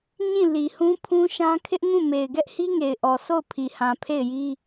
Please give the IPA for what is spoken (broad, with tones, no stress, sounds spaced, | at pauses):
ɲ ĩ˦˨ l i˨ h ũ˦ pʰ ũ˦ ʃ ã˦ kʰ ɪ˦ ʔ ŋ ũ˦˨ m e˨ ɪ̯ ɡ ɛ˦ ʔ h i˦ ŋ e˨ ɪ̯ ʔ ɔ˨ s o˦˨ ʊ̯ pʰ i˨ h ã˨ pʰ e˦˨ ɪ̯ j i˦